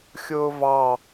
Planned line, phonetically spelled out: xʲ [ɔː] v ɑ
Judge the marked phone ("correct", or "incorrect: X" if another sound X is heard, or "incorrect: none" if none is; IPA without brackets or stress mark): incorrect: ʊː